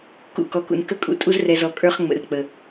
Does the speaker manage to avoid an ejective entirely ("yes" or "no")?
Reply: no